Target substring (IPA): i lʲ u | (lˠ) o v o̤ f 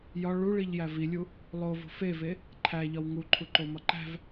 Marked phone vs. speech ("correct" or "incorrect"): correct